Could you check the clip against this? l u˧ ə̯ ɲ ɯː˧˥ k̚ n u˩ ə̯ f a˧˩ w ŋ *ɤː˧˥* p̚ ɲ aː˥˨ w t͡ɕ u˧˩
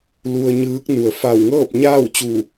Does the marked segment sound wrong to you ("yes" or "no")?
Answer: yes